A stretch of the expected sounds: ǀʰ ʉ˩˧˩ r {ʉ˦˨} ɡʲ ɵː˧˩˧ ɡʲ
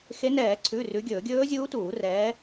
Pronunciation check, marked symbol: incorrect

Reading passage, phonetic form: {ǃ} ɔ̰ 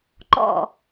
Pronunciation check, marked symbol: correct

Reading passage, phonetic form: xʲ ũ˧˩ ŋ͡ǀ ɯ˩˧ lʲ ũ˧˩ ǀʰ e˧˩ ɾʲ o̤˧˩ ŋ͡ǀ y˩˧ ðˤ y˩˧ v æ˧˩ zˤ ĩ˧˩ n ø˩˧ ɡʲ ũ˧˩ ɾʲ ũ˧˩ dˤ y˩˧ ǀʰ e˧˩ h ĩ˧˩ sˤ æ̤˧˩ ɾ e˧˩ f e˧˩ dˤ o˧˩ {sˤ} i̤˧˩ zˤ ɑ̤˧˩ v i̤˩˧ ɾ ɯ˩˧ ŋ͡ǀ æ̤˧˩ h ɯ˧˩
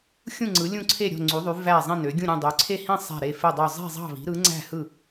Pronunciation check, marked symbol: incorrect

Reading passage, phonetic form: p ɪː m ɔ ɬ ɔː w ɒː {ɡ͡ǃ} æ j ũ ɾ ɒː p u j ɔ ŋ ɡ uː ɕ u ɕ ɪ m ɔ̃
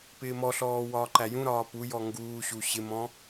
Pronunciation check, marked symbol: incorrect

